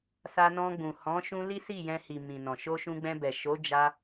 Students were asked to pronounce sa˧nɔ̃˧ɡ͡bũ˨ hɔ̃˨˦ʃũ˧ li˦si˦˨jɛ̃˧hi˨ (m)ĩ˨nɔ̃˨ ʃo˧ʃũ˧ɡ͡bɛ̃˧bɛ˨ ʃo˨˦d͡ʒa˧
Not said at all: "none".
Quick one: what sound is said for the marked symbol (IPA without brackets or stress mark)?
m